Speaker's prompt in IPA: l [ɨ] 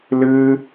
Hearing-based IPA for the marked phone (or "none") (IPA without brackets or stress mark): ɨ